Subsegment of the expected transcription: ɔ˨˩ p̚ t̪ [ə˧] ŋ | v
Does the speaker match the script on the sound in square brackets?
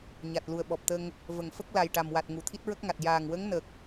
yes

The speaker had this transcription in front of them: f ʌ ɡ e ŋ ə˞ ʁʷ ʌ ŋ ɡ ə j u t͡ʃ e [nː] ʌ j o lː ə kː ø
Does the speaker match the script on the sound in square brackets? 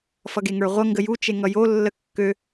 no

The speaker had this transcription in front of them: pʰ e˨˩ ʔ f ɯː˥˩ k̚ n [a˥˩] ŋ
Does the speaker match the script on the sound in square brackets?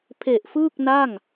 yes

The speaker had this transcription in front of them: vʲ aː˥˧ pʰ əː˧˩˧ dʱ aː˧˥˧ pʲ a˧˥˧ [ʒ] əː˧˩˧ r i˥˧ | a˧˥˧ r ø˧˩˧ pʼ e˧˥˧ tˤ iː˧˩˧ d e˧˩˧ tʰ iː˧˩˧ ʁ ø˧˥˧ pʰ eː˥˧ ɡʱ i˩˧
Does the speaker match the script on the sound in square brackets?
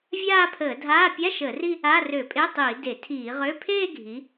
no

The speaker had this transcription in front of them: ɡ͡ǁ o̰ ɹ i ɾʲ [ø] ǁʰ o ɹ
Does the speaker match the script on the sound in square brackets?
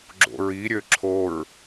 yes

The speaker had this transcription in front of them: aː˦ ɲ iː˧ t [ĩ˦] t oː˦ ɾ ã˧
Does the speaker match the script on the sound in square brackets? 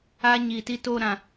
no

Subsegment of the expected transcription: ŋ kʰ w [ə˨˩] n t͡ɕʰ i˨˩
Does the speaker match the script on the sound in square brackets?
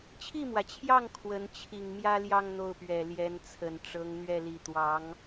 no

